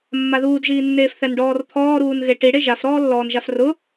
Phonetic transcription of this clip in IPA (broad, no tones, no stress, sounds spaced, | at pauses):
mː a ð uː d ʒ iː nː eː f θ ɛ n ɖ ɔː r t̪ʰ ɔː ɾ uː n ɣ e ʈ i ɽ e ʒ a f ɾ ɔː lː ɔː n ʒ a f r ʊ